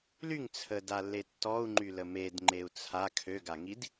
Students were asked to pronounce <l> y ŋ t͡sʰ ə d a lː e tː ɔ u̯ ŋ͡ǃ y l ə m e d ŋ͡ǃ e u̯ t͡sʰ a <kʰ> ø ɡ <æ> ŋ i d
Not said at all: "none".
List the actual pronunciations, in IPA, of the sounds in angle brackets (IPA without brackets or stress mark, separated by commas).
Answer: l, kʰ, a